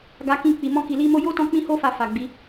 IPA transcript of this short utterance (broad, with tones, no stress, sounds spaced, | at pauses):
ɡ a˧ k ĩ˧ k͡p i˨ m ɔ̃˧ k i˨ l i˧ m o˧ j o˦ t ɔ̃˧ k͡p ĩ˦ h o˦ f a˧ f a˨ ɡ͡b i˨˦